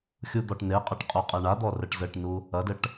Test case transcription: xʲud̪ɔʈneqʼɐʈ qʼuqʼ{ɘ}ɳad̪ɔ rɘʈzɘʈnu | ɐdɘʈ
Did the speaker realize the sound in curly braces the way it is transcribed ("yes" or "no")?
no